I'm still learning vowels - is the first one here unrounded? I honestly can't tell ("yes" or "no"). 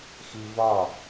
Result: yes